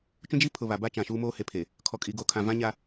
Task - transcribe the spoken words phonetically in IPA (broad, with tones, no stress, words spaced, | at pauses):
t͡ʃũ˦d͡ʒi˦pʰʊ˨ βa˨ba˦ t͡ʃã˨ʃuː˦moː˦ he˨pʰe˨ | kʰɔ˨kʼi˨ ɡoː˨kʰã˨ vã˦ɲa˦